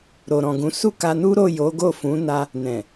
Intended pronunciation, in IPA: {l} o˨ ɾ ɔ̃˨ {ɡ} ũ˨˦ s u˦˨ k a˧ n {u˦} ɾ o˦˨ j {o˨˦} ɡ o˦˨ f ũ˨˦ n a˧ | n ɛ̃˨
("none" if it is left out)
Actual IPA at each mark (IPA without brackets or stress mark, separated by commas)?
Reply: ɾ, ɡ, u˦, o˨˦